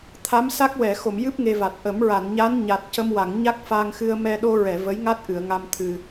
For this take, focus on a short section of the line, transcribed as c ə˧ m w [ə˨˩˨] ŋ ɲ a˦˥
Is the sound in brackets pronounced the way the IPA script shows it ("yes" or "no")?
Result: no